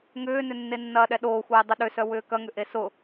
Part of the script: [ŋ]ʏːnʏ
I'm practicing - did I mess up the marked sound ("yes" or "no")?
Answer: no